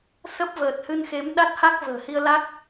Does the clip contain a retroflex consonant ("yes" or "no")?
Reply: no